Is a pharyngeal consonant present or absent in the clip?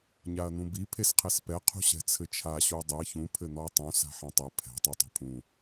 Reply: present